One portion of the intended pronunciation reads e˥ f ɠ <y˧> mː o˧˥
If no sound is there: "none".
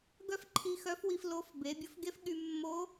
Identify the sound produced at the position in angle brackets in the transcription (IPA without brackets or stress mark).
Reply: y˧